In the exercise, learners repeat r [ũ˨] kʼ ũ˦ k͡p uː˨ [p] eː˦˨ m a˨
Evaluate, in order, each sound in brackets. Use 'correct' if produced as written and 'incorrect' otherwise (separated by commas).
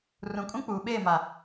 correct, incorrect